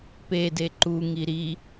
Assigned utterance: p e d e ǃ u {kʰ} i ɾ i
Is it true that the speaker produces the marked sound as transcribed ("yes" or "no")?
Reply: no